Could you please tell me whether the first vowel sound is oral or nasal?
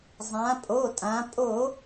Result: nasal